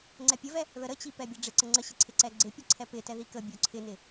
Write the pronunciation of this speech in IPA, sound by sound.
ŋ͡ǀ ɛ pʲ ə v ɛ | ð ə ɾ ə t͡ɕ i p ɛ bʲ ɛ ɖ͡ʐ ɪ ǀ ə ŋ͡ǀ ə ɕ ɪ ǀʰ ɪ ǀ ɛ ɡ͡ǀ ɪ pʲ ə ǀʰ ɛ p ɪ t ɛ ð i k ə bʲ o ǀʰ ɪ n ɪ

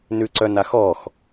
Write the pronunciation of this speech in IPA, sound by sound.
n ʉ ǀ œ n a x ɔ x

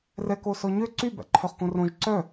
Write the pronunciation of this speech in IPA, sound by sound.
r ɛ k o s ɔ ɲ ø ǀ y b æ̰ ǃʰ œ χ k õ r õ ʒ ǀ œ

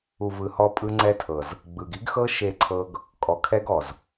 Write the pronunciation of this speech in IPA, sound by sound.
u˨ v ɯ˨ h ɔ˦ pʼ ɯ˦ ŋ͡ǀ ɛ˦ tʰ ɤ˨ z | ɡ͡b ɯ˨ ɡ i˦ ɡ x ɤ˦ ʃ e˦˨ ǀʰ ɤ˦ ɡ | kʼ ɔ˨ kʰ ɛ˦ ɡ ɔ˨ z

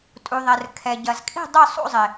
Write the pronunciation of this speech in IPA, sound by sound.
tʼ u˩ ðˤ ɛ˩ r kʰ ɛ˩ ɟ ɐ˩ z kʼ i̤˦˨ dˤ ʏ˦˨ sˤ ṵ˦˨ zˤ ɪ˩

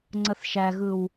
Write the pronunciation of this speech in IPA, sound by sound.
ŋ͡ǀ ə θ ʃ æ ɣ ɯ w

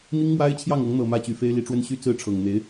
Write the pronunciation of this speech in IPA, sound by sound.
n̪ i˥ ŋ m w a˥ ɪ̯ t͡ɕʰ j ɑ˥˩ ŋ ɤ˧˥ ŋ n̪ ɤ˨˩ m ä˥˩ t͡ɕ y˨˩ f e˥ ɪ̯ l i˧˥ ʈ͡ʂ w ə˥ n ɕ y˥ t͡s ɹ̩˥˩ ʈ͡ʂʰ ɤ˨˩ ŋ n̪ e˧˥ ɪ̯

